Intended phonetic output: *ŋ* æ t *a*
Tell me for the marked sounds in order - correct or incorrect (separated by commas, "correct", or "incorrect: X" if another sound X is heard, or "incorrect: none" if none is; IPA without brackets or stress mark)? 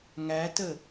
correct, incorrect: ə